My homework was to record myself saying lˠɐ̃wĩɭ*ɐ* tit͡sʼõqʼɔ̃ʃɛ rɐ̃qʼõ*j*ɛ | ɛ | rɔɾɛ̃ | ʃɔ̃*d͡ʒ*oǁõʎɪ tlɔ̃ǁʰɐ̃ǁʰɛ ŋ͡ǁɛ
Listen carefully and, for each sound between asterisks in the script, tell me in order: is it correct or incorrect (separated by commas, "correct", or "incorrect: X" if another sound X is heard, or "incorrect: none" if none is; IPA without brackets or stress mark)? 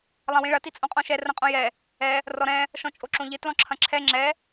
correct, correct, incorrect: t͡ʃʼ